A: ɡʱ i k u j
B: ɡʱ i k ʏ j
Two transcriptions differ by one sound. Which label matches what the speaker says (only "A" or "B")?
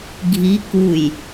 A